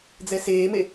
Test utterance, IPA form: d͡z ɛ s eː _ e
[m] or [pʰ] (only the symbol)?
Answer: m